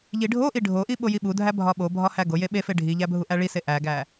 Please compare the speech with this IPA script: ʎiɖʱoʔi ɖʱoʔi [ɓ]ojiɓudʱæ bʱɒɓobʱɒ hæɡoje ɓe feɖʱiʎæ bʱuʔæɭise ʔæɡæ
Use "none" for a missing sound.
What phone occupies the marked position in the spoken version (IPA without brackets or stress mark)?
ɓ